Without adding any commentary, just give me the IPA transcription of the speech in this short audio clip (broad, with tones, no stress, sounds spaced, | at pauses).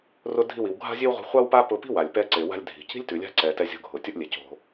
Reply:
r ʊ˧ dʱ i˧ w i˩ w ɡʱ a̤˥ zʲ e˥ w ʁʷ i̤˧ χʷ a˥ w p a˥ p ʊ˧ p i̤˥ w a˩ lʲ p ɛ˧ ǀ e˩ w a̤˧ lʲ dʱ i̤˩ c i̤˥ lʲ t ʉ˩ lʲ a̤˧ ǀ ɛ˩ t ɛ˧ zʲ o̤˧ ɡʱ ʊ˩ tʲ ʊ˥ ʔ lʲ e˩ c o̤˧